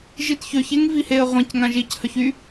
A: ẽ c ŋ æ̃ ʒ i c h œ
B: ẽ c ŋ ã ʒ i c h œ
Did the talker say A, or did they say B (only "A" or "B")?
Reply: B